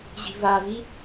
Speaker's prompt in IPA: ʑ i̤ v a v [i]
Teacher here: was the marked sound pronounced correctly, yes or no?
yes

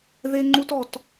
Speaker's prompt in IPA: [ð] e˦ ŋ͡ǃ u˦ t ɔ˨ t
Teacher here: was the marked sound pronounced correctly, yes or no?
yes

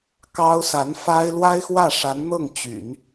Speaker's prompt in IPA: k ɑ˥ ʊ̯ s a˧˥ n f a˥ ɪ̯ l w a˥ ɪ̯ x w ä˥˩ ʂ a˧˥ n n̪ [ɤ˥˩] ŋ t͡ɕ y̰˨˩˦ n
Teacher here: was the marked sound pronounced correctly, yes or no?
yes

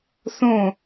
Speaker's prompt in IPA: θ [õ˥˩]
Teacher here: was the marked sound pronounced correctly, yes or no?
yes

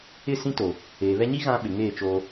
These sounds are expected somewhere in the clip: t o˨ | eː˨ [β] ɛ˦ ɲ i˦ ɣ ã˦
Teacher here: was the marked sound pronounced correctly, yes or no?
yes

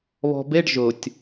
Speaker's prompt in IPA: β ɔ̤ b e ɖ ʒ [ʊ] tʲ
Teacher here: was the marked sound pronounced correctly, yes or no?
yes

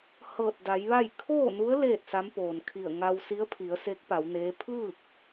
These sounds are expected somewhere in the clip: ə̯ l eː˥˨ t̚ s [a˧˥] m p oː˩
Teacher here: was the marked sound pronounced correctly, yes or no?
yes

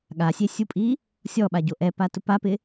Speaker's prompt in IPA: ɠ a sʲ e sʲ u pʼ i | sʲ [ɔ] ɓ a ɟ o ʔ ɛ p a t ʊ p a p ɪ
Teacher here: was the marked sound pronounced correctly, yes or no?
yes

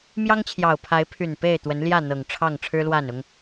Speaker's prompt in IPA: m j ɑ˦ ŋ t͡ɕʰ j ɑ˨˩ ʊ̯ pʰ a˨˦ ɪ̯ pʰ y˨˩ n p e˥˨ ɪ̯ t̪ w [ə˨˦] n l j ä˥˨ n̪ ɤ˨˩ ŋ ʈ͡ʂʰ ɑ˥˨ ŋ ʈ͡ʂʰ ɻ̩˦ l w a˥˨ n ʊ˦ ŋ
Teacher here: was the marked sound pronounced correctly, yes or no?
yes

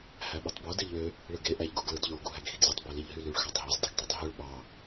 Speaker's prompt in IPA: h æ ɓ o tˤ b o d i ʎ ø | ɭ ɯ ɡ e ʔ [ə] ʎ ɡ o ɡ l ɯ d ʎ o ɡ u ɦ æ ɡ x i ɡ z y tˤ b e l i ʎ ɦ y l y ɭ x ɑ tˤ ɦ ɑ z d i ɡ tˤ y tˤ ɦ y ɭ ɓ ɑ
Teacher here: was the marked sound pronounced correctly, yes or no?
no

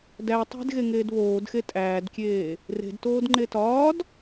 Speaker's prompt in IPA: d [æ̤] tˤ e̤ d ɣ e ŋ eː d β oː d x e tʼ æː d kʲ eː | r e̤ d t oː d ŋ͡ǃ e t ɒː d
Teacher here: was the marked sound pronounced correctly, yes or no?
no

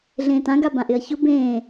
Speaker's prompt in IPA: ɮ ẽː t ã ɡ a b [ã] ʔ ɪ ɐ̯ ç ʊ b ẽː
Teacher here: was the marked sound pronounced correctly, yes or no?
yes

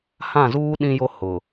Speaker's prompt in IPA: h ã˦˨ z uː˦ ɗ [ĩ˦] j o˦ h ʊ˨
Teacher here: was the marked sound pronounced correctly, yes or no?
yes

